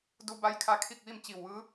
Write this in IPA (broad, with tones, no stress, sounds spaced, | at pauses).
d u˧ b a˧˥ j kʰ a˧˥ kʰ i˥˨ k̚ ʋ i˥˨ m t͡ɕ i˧˩ w ʋ ɯː˧˥